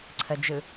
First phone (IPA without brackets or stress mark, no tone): ǀʰ